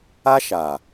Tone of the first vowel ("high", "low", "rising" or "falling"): high